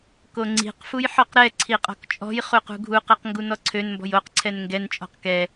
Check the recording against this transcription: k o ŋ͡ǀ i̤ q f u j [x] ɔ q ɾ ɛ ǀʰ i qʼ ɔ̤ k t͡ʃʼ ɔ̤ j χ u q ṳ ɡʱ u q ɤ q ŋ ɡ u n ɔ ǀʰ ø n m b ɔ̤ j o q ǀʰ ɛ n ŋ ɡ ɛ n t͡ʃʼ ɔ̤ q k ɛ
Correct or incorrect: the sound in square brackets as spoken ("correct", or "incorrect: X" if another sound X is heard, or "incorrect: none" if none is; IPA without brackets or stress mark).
incorrect: ħ